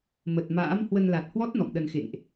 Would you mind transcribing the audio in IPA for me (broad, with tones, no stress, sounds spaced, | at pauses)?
m ə˨˩ t̚ m a̰ː˧˥ m h w ə˧ n l a˨˩ t̚ h w ɔ˦˥ t̚ n ɔ̰˧˨ m ɗ ə˧ n x ḛ˧˨ ŋ ʔ